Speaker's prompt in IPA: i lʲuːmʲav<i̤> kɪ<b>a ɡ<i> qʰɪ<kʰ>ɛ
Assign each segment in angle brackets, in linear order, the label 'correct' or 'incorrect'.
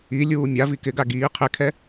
incorrect, incorrect, incorrect, correct

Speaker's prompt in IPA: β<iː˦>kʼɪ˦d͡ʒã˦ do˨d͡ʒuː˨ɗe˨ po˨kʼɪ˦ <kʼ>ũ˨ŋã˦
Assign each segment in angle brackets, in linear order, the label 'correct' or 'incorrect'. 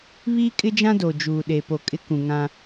correct, incorrect

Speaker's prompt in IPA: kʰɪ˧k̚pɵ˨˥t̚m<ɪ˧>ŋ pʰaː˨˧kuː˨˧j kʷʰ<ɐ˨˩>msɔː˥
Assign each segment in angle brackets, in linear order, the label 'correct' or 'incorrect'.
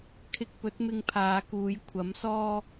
correct, incorrect

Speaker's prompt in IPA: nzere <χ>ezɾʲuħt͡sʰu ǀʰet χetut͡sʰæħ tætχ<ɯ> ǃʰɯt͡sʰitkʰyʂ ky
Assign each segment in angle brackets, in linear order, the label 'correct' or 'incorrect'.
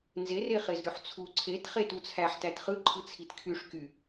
correct, correct

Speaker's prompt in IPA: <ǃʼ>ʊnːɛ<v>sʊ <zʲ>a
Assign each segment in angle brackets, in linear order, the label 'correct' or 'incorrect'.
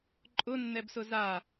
correct, incorrect, incorrect

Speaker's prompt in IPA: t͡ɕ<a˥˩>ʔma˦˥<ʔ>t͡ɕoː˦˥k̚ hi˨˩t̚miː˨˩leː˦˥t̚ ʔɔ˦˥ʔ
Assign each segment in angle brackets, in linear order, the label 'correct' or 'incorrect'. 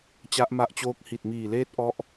incorrect, correct

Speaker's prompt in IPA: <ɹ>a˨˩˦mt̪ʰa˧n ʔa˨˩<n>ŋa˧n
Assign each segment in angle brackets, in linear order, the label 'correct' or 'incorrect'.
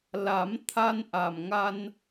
incorrect, incorrect

